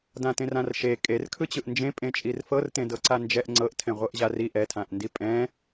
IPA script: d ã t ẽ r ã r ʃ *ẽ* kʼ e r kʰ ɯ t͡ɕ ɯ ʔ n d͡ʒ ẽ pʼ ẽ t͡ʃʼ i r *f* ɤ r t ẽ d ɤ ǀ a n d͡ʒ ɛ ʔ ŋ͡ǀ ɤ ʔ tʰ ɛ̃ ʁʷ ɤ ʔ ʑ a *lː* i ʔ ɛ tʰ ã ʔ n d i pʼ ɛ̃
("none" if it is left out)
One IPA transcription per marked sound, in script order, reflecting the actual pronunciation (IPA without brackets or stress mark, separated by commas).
e, f, r